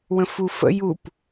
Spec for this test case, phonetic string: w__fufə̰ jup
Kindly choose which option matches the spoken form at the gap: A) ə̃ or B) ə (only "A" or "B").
A